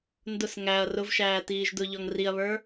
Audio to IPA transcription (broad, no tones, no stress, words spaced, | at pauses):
ndʊs ŋæɐ̯ rʊvʃæː tiːʒdʊʎɔŋ riɐ̯βə˞